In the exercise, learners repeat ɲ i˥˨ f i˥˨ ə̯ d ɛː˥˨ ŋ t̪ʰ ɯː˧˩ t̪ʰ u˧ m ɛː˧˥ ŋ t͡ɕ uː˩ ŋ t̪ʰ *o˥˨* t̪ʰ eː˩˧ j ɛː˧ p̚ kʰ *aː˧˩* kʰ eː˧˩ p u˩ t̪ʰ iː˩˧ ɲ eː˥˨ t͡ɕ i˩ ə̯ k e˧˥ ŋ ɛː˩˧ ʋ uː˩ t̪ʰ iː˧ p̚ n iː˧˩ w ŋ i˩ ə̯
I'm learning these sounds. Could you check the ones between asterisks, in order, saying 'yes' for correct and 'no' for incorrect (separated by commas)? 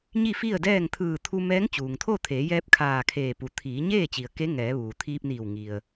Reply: yes, yes